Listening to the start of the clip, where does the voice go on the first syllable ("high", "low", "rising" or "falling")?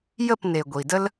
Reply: falling